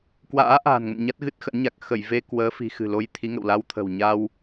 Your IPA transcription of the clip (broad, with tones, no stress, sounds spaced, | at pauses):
k w a̰ː˧˥ ʔ a̤ː˨˩ n ŋ ə̰˧˨ n ɲ a˦˥ t̚ ɣ ɨ˦˥ t̚ x ə̰˧˥ n ɲ a˨˩ k̚ x ə˧˩ j v e˧ k w əː˨˦ f i̤˨˩ x ɨ̤˨˩ l o˧ j t̪ʰ i˨˦ ŋ ə̰˧˨ w l a˧ w t̪ʰ ə̤˨˩ w ɲ a˧ w